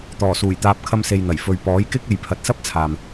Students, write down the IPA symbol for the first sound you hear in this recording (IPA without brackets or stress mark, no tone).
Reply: t̪